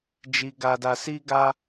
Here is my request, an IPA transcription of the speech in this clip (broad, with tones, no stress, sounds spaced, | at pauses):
d͡ʒ i˧ ɡ a˧ d a˧ s i˦ ɡ a˦